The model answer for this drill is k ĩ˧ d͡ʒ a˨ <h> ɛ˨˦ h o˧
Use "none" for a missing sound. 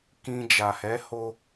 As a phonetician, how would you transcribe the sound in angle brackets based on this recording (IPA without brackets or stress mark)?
h